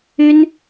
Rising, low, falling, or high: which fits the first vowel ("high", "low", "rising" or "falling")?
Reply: high